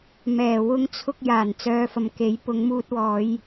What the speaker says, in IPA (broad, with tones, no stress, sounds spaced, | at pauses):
m ɛː˨˩ w ʊ˧ ŋ t͡sʰ ʊ˧ k̚ j aː˨˩ n t͡s œː˨˧ f ɐ˨ m k e˨˥ j p ʊ˨˧ ŋ m uː˧ t̚ w ɔː˨˧ j